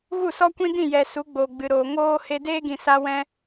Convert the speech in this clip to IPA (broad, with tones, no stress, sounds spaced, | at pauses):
ɣ u˦˨ s ɔ˦ kʷ ĩ˦ d ĩ˦˨ j ɛ˨ s u˨˦ ɡ͡b oː˨ ɡ͡b ɨ˨ ɾ oː˨ ŋ oː˦ h e˧ d eː˦ ɡ ĩ˨ s a˧ w ɛ̃˧